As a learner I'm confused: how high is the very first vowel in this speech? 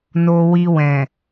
mid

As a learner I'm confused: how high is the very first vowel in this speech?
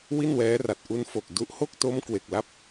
high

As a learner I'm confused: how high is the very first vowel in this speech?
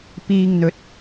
high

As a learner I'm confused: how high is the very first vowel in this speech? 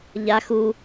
low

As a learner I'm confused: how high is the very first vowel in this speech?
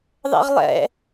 mid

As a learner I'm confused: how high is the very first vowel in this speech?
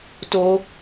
mid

